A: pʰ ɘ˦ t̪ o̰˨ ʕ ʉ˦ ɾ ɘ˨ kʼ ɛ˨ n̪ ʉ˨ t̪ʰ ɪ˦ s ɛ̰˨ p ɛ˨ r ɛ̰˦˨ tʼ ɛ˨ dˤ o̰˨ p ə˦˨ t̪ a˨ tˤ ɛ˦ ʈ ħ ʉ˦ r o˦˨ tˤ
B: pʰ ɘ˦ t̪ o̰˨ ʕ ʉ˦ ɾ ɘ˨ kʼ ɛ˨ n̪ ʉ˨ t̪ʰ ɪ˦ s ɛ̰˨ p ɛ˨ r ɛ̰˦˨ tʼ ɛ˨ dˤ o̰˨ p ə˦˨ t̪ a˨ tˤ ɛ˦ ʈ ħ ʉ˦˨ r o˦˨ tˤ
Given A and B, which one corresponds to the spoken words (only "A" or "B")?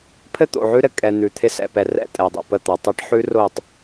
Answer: A